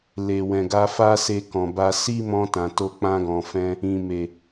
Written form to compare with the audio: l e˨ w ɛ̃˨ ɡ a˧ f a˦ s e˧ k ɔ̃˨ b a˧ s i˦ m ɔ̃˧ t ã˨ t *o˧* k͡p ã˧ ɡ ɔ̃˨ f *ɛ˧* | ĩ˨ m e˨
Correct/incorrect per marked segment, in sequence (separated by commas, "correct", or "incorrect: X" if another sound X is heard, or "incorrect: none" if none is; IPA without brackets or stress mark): correct, incorrect: ɛ̃˧